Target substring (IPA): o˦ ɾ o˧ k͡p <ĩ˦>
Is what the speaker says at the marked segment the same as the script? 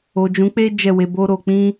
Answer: yes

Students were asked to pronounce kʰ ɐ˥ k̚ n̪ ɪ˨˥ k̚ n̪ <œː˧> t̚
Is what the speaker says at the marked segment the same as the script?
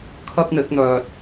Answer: yes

